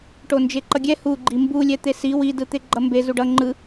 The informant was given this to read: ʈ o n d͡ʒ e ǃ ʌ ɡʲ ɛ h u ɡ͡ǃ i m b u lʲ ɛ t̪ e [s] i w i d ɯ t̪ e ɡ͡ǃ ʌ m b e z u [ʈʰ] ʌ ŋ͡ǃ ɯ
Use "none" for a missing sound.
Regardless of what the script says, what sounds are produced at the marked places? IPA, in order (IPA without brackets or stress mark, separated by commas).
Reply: s, ɖ